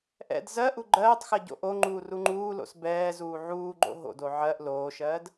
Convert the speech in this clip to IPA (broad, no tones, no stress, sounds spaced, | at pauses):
ʔ ɛ̰ d z ɜ ʔ u ɡ͡ǃ ɜː tˤ x ɜ ɟ o̰ ʔ o ŋ͡ǃ uː r u ŋ͡ǃ uː l o̰ s b ɛː z uː ʕ uː ɡ͡ǃ o̰ ɦ o̰ d o ʕ ɜ ʔ l oː ʃ ɜː d